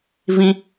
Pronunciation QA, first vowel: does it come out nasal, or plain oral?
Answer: nasal